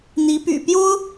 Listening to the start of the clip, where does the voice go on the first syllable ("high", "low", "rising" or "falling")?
rising